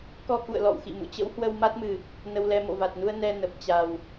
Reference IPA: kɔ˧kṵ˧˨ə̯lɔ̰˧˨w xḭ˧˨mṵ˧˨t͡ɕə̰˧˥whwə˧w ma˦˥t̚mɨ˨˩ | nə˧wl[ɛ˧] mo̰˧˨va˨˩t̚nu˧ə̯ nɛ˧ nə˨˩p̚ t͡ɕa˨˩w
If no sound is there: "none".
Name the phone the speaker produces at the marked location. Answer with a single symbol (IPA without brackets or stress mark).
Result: ɛ˧